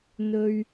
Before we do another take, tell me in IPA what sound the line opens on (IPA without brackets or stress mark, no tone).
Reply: n̪